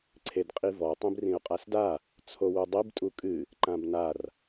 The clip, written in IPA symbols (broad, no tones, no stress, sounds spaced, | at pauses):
ǀʰ e d qʼ i v ɔ tˤ ĩ b r ĩ ʊ̯ qʼ a s d a | t͡sʰ o w u dˤ i b tʼ u kʼ ɨ | ǃ ã b n a r